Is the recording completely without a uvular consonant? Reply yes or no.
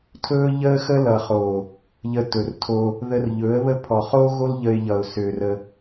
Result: no